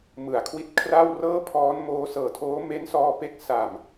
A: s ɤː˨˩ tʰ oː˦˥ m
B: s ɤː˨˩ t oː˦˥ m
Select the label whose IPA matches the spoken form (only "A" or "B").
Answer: A